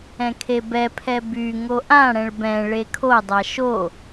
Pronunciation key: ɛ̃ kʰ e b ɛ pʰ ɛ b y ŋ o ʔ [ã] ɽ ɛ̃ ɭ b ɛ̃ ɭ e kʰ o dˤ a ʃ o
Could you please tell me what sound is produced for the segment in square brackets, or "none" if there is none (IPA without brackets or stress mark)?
ã